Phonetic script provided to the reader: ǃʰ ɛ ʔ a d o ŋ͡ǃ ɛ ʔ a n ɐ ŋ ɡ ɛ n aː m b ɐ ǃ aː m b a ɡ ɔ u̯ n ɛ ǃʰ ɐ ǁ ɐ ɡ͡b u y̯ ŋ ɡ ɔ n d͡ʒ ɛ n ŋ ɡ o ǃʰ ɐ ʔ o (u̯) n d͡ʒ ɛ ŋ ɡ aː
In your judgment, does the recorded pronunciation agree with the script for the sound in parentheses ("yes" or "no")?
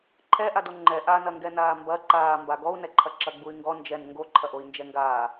no